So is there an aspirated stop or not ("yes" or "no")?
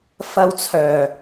yes